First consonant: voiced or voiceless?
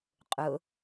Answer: voiceless